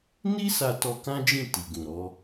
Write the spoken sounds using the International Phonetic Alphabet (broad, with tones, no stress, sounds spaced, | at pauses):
n i˦ s a˧ t ɔ˧ k ã˦ d͡ʒ ĩ˦˨ t i˨ ɡ ũ˨ ɾ ɔ˨˦